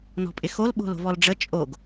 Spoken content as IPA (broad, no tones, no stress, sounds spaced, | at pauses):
n ɔ̤ pʼ ɪ x o l ɓ o̤ l o̤ v ɔ l ɖ͡ʐ ə t͡ʃʼ o ɡ